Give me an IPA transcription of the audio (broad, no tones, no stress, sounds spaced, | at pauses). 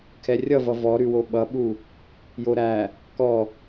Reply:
kʰ ɛ rʲ ʌ v ʌ v ɔ ɾ ʉ w o ɓ ʌ ɓ u | j o ɾ æ | k ɔ